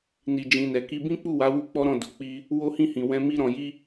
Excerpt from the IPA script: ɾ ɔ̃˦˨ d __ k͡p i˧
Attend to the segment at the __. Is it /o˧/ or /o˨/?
o˨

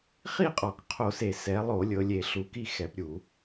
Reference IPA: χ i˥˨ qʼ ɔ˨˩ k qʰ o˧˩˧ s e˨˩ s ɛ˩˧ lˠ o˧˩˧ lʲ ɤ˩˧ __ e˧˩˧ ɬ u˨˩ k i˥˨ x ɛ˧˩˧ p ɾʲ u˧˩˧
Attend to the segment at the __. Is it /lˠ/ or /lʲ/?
lʲ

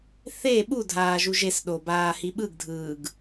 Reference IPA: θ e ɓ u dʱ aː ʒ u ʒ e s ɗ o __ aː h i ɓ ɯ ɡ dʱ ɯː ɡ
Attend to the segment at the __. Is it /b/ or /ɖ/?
b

